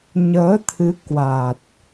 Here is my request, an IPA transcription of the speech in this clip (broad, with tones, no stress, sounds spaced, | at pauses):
ɲ əː˨˦ t̪ʰ ɨ˨˦ k w a˨˩ t̚